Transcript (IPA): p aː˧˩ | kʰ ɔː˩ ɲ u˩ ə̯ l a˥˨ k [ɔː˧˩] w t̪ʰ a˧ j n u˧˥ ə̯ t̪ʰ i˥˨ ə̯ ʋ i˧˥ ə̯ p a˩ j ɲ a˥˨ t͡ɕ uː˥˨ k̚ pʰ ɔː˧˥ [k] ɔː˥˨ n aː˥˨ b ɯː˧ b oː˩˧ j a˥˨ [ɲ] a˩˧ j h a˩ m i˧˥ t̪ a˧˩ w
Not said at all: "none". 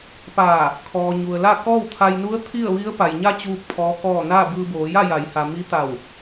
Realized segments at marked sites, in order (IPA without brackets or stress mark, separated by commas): ɔː˥˨, k, j